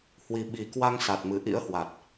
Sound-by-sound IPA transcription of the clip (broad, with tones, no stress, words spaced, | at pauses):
hwi˨˩ɓi˨˩kwa˧ŋ sa˨˩t̚mɨ˨˩ ʔḭ˧˥ə̯hwa˨˩t̚